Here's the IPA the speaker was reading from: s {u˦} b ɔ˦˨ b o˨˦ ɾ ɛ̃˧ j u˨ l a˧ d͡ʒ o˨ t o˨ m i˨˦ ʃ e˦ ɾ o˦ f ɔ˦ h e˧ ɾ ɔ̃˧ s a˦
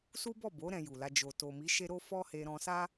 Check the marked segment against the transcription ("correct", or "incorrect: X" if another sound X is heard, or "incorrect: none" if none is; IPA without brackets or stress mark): correct